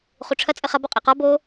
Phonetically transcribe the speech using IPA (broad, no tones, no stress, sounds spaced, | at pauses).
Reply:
χ u ʈ͡ʂʰ ɐ t͡sʼ ɘ χ ɐ b ɔ qʼ ɛ q ɔ b o